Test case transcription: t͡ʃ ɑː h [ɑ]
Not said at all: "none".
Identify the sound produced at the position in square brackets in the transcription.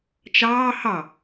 ɑ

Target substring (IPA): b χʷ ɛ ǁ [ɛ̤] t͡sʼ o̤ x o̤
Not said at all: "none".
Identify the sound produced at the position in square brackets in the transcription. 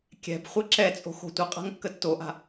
ɛ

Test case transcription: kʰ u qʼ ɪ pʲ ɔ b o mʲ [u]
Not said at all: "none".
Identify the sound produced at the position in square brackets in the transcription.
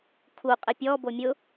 ʊ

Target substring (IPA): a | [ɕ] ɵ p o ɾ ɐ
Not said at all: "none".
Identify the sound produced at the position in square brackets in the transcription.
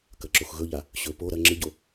ɕ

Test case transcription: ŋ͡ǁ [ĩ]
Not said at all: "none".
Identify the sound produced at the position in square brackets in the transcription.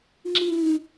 ĩ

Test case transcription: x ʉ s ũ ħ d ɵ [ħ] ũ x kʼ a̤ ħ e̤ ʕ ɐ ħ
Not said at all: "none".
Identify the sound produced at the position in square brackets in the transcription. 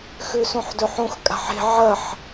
ħ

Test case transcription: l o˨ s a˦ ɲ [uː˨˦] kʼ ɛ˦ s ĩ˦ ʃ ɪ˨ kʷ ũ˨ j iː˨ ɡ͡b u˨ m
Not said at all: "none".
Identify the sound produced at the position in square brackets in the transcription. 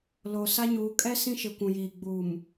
uː˨˦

